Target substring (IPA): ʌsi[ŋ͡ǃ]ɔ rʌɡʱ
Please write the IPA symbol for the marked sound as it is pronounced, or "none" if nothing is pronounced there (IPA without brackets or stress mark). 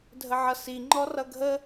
ŋ͡ǃ